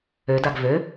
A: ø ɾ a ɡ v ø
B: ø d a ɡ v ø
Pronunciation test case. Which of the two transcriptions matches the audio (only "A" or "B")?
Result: B